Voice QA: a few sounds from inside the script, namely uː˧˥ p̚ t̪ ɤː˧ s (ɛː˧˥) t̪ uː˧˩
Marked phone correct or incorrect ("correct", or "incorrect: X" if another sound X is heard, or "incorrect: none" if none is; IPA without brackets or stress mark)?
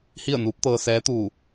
correct